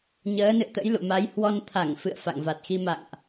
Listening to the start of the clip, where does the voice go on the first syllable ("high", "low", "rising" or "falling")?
rising